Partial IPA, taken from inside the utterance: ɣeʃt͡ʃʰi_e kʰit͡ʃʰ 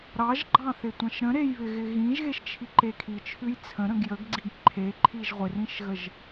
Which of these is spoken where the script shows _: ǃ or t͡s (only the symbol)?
ǃ